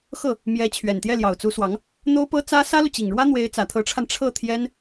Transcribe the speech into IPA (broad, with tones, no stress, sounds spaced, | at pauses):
x ɤ˥˩ | m j ɛ˧˥ t͡ɕʰ ɥ ɛ˨˩ n t̪ j ɛ˥˩ l j ɑ˨˩ ʊ̯ t͡s u˧˥ s w ɑ˧˥ ŋ | n̪ o˥ ʊ̯ p ɤ˥ t͡s ä˥ s ä˥ l u˨ t͡ɕ i˨˩ ŋ ɻ w ä˥ n̪ w e˧˥ ɪ̯ t͡s ä˨˩ t̪ʰ ɤ˧˥ ʈ͡ʂʰ a˧ n ʈ͡ʂʰ ɤ˥˩ t̪ʰ j ɛ˥ n